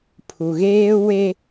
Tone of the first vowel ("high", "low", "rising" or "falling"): low